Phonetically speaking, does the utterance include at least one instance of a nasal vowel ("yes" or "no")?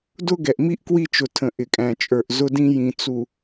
yes